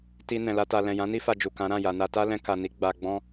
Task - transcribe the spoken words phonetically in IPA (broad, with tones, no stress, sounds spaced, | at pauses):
t i˧ n ɛ̃˧ l a˦ t a˧ l ɛ̃˨ j ã˨˦ n i˦ f a˧ d͡ʒ u˨ k ã˨˦ ɾ ã˦˨ j a˨ n a˧ t a˦ l ɛ̃˧ k a˨ n i˨˦ ɡ͡b a˧ ɡ͡b ɔ̃˦